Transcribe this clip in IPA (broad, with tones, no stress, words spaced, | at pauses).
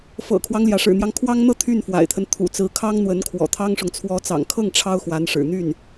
fɤ̰˨˩kʰwɑ˦ŋljä˩ ʂɻ̩˨˩n̪jɑ˦ŋkʰwɑ˥ŋn̪ɤ˥ t̪ʰy˥˩nfwa̰˨˩ɪ̯t̪ʰə˦n t̪ʰṵ˨˩t͡sɹ̩˧˥kʰɑ˥ŋ n̪wə˧˥nkʰwɔ̰˨˩t̪ʰɑ˥ŋʂʊ˨ŋ t͡sʰwɔ˧˥t͡sɑ̰˨˩ŋkʰɤ˥˩ŋ ʈ͡ʂʰɑ˥ʊ̯xwa˧˥nʂɻ̩˨˩n̪y˥˩n